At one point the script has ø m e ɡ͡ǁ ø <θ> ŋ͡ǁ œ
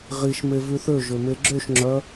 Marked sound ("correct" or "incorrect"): incorrect